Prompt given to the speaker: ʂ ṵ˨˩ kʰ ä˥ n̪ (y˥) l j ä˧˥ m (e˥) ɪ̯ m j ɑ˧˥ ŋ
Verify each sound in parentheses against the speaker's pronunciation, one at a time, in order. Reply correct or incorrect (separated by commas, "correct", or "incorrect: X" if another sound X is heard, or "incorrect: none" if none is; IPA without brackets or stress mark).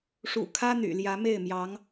incorrect: y̰˨˩, incorrect: e˥˩